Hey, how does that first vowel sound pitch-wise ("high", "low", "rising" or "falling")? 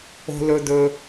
low